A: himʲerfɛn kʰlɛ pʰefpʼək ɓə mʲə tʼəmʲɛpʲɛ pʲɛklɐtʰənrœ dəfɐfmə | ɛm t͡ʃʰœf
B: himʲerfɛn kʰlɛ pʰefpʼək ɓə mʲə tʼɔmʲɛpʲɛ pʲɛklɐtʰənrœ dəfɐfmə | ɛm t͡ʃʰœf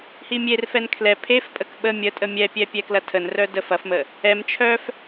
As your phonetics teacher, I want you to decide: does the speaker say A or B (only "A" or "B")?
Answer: A